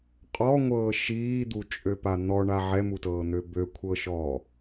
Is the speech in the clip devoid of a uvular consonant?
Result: no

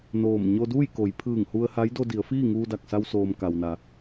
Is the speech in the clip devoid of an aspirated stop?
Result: no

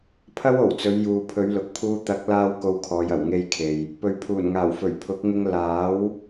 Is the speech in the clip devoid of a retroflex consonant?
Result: yes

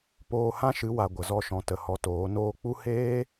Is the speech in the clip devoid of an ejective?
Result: yes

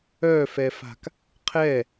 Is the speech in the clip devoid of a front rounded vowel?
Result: no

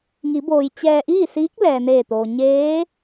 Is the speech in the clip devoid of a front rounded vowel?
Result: yes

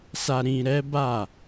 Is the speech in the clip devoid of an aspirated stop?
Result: yes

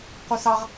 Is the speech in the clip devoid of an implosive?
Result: yes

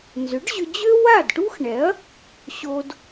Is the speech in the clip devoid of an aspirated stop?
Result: yes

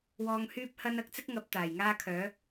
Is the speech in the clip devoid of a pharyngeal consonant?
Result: yes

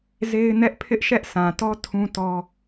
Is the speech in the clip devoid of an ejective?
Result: yes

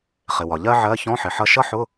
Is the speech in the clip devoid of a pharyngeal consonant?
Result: no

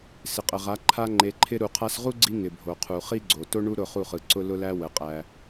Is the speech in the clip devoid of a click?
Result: no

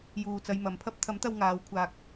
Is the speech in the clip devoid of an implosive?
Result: yes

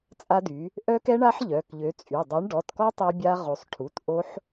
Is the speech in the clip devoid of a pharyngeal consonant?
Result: no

